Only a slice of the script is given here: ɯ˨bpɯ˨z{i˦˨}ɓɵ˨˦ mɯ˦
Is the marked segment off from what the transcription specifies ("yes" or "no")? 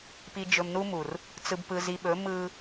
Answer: yes